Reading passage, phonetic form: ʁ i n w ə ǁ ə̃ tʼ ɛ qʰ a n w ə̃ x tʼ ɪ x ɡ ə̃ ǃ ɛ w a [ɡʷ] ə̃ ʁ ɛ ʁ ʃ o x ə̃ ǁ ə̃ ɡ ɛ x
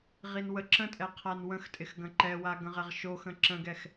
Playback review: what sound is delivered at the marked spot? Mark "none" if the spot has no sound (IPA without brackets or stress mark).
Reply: ɡ